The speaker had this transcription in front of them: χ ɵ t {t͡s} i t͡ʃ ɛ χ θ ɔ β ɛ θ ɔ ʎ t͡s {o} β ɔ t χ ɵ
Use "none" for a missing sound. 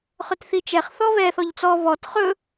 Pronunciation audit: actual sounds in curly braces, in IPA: θ, ɔ

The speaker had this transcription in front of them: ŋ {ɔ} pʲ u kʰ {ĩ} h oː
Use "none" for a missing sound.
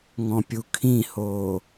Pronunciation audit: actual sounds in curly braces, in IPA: ɔ̃, ĩ

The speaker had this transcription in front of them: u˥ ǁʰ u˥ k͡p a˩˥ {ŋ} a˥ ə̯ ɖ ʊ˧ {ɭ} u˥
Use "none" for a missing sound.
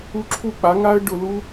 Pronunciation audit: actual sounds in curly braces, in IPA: ŋ, l

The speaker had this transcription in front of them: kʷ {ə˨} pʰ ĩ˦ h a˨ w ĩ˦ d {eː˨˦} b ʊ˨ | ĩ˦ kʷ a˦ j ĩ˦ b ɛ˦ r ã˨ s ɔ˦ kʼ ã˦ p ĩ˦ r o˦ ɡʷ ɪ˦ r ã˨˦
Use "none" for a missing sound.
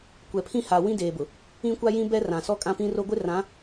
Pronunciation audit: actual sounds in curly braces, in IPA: ɛ˨, eː˨

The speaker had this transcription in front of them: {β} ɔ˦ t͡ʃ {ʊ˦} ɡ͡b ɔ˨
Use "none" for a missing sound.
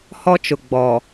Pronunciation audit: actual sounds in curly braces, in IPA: h, ʊ˨

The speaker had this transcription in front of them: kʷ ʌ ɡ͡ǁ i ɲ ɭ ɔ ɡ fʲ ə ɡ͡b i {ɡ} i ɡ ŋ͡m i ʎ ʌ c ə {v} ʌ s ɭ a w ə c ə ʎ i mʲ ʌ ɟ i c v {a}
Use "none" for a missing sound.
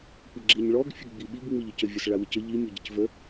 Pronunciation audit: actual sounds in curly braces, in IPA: ɓ, vʲ, ə

